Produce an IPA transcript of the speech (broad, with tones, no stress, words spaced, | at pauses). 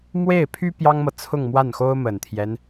mwe˥˩ɪ̯pʰy˥ pjɑ˥ŋmɤ˨ t͡sʰʊ˥˧ŋmwa˥˩nxo˥ʊ̯ mə˨˩nt̪ʰjɛ˦n